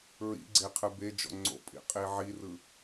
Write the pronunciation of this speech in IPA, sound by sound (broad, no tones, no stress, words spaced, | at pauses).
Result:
ɹḭɡ͡ǀe qʰɯbed͡ʒɔ̰ ŋ͡ǀo̰pʼḭ qʼiʕirɯ